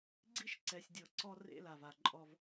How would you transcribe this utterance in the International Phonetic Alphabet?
ɡ͡ǀi˦ʃǀɛ˨sʲdʲɤ˨ ǀɔ˦ rḛ˦la˨va˨ǃʼɔ˦v

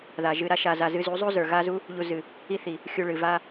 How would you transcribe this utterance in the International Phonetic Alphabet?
ða˨ʒɨ˧ɾa˦ ʃa˧za˧ zɨ˧zu˨˦zˤu˦ zə˞˨ɣa˦zu˦ | ʎu˧zɨ˨ | i˦θi˨ | xʲu˧ɭɨ˨va˦

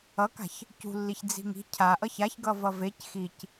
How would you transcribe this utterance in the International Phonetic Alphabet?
ʌka̤ç | cṳlːiç d͡zi̤ŋi̤ cʰaʔʌç açɡʌ vʌvec xic

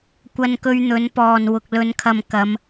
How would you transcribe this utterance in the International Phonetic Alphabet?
kʷɐ˧nkɵ˧ɥn̪ɵ˨˥n pɔː˨n wʊ˨k̚lɵ˨˧nkʰɐ˨m kɐ˨˧m

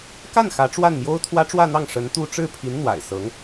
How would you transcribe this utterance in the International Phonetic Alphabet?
ka˥˩n xä˧˥ʈ͡ʂwa˥˩nmjo˥ʊ̯ t̪ʰwä˥ʈ͡ʂwä˥˧n̪ɑ˥˩ŋ ʂə˧˥nt̪u˥˧ ʈ͡ʂɻ̩˥˩pʰi˧˥n n̪wa̰˨˩ɪ̯ sɤ˧˥ŋ

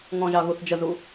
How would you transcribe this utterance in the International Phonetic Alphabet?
ŋɔ̃ʒɑ ɣuθd͡ʒəzu

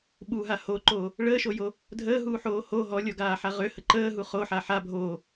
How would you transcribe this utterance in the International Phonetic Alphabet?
ɓuɦa hoǃoː | ɭəːʃojo | dʱəːɦuħoː ho ɦɔlʲɔɡaːħa ʁøhə ǃəːɦu χoħa ħa bʱoː

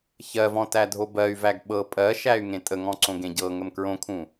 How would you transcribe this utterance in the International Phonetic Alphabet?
çɜvɔ̃ tædʱobɜy̯væɡ ɓɤ pʼɜʃæy̯ ŋẽtʼəŋɔ̃ ǀõɡẽɟɤŋəm kɹõkʰũ

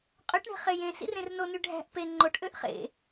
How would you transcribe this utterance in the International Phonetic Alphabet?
qʼøʈɳe̤ χejẽ sḭrẽrnony ɖʱæ̤ʔ pe ŋ͡ǃoʈ ʔøʔχḛ

